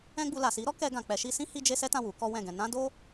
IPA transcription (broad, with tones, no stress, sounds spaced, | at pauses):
ɛ̃˦ ɡ͡b u˧ l a˨ s i˨˦ ɾ ɔ˦ k ɛ˧ ɡ ã˨ k͡p ɛ˨˦ ʃ i˧ s ĩ˦ h i˦ d͡ʒ e˦ s ɛ˦ t ã˦˨ w u˨˦ k ɔ˦ w ɛ̃˦˨ ɡ ɛ̃˧ n ã˦ d o˦